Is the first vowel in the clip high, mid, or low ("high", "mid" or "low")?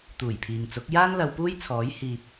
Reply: high